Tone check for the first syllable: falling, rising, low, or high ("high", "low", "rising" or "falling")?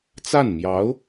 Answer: falling